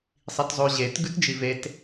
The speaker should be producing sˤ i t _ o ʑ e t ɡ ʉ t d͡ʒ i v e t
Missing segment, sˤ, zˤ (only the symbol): zˤ